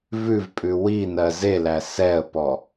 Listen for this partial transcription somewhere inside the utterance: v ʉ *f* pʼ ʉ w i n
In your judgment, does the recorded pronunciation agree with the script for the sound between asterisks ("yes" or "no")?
no